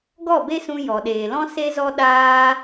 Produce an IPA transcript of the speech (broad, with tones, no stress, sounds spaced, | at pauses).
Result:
ɡ ɔ˦˨ b e˦ s ũ˧ j ɔ˨ ɗ eː˨ l ɔ̃˦ s e˦ z ɔ˦ ɗ aː˦